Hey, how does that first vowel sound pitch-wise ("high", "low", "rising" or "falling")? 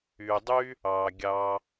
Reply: low